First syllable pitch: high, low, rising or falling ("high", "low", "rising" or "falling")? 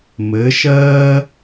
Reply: rising